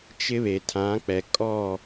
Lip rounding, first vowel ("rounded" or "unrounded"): unrounded